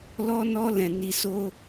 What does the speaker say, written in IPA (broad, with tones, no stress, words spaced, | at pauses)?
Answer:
lɔ˦nɔ˦lɛ̃˧ ni˧so˦